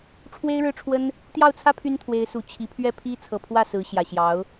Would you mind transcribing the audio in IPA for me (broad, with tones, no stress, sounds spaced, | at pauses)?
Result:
ʈ͡ʂʰ w e˥ ɪ̯ ɻ ɻ̩˥˩ ʈ͡ʂʰ w ə˥ n | t̪ j ɑ˥˩ ʊ̯ t͡sʰ ä˥ pʰ y˥ n t̪ʰ w e˧˥ ɪ̯ s u˨˩ t͡ɕʰ i˧˥ pʰ ɥ ɛ˥˩ pʰ i˥ t͡sʰ ɤ˨˩ pʰ w ä˥˩ s ɹ̩˧˥ ɕ j ä˨˩ ɕ j ɑ˧˥ ʊ̯